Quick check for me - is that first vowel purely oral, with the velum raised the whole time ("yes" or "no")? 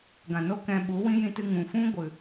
no